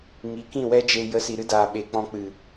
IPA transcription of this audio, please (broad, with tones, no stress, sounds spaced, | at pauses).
ŋ i˨˦ k ĩ˦˨ w ɛ˦ d͡ʒ e˧ j ə˨˦ s i˨ ɾ ɨ˦ d aː˨ ɓ e˨ k͡p ɔ̃˧ k͡p ɨ˨